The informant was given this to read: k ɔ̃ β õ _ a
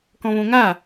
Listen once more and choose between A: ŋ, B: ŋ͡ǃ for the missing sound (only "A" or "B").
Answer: A